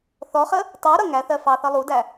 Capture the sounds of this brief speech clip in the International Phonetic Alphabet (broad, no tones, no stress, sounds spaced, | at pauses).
θ ɔ χ ə | tˤ u ɾ ʌ ŋ æ θ ɜ f ɑ θ ʌ lˠ u d æ